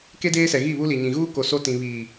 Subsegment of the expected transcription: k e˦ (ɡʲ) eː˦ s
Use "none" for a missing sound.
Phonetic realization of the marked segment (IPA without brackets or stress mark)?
d